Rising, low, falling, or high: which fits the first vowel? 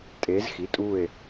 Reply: rising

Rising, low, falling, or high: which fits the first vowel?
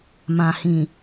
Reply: low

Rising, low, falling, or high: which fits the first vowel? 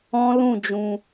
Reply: high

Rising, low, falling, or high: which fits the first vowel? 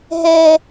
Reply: high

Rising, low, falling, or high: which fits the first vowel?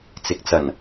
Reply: low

